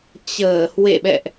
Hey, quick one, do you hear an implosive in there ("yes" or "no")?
yes